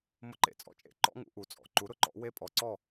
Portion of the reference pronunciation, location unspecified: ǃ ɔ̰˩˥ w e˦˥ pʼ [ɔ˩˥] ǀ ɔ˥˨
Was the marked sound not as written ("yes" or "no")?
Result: no